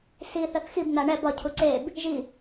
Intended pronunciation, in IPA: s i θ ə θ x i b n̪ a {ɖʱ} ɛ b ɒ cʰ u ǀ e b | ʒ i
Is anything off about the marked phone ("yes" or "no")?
yes